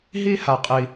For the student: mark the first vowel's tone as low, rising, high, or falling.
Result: high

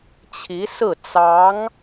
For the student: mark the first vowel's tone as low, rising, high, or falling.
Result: rising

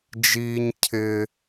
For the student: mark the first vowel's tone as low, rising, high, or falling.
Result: high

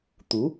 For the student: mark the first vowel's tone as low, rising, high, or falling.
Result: rising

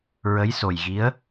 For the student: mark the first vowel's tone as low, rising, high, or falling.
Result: rising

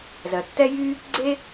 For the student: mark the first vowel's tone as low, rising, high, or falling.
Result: low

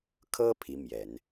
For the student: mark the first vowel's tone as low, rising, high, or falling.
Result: high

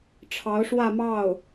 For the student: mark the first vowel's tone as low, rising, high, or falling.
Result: rising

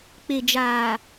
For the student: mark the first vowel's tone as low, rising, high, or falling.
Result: low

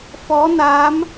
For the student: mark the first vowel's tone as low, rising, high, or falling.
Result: rising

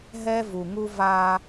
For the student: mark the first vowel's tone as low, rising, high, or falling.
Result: high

